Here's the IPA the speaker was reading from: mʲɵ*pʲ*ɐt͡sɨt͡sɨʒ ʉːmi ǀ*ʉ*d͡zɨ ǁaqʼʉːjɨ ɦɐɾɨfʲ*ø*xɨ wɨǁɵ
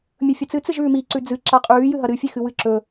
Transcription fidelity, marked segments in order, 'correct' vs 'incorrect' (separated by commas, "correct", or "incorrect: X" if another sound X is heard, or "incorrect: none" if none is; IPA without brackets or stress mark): incorrect: fʲ, correct, incorrect: e